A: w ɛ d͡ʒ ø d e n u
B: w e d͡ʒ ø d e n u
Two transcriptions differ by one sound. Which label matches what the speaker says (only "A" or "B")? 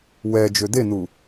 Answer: A